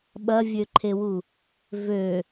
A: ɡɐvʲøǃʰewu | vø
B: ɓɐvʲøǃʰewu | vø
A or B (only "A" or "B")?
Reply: B